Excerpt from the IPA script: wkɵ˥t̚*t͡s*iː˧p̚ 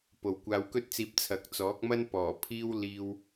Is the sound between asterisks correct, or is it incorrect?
correct